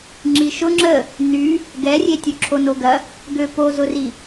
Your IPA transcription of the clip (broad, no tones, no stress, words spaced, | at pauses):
ŋ͡ǁiʃʊ ŋ͡ǁə | ny | ɡɛrʲetʲʊ ǁʰonoɡɐ | ɡøpozʊri